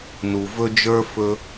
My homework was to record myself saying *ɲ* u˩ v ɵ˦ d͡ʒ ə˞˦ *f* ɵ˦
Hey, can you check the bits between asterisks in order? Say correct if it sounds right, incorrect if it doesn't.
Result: incorrect, correct

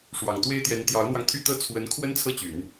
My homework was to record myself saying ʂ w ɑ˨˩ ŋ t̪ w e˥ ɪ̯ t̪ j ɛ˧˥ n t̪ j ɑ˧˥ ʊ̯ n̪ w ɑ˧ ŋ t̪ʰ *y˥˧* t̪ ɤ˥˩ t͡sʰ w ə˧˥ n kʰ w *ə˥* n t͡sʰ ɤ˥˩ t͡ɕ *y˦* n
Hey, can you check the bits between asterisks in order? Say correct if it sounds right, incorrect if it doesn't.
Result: correct, correct, incorrect

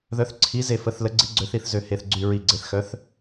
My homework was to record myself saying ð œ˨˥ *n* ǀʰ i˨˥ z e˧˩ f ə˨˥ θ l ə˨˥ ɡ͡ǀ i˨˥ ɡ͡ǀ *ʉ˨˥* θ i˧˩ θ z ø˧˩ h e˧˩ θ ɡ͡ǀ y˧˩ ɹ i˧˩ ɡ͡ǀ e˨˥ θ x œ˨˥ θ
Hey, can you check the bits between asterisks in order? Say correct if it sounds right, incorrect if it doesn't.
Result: incorrect, incorrect

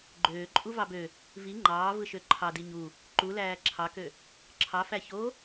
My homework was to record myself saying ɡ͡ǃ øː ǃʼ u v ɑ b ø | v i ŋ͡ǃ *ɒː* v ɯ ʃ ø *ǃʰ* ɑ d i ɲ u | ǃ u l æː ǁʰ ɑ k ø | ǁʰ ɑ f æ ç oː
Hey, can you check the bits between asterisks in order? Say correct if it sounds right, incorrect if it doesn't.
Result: incorrect, correct

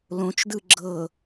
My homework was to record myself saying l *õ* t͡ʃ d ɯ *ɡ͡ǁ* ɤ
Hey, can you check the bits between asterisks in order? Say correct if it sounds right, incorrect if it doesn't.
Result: correct, correct

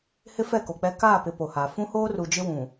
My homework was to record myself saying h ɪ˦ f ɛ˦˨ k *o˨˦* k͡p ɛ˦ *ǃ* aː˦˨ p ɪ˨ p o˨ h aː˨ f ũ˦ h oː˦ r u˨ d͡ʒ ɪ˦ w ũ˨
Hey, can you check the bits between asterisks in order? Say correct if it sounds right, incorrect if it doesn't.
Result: incorrect, incorrect

